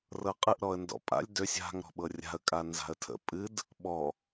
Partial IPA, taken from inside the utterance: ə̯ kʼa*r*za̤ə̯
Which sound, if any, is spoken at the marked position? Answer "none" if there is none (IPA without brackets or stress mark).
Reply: n